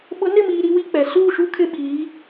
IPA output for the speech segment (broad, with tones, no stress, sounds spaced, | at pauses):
ɓ ʊ˨˦ n ɪ˦˨ m iː˨ ɾ i˦ w i˦ k͡p ɛ˨ s uː˦˨ ʃ u˦ kʰ ɪ˦ ɓ iː˨˦